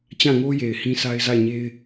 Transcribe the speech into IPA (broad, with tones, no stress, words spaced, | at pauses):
t͡ɕã˦˨ŋo˦ je˨ɪ̯hĩ˦sʰa˦ɪ̯ za˦˨ɪ̯ɲe˦ɪ̯